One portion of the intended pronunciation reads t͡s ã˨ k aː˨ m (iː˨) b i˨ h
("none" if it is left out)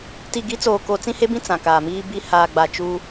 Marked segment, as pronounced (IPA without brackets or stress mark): iː˦